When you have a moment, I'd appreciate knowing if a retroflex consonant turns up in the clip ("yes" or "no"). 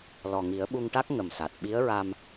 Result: yes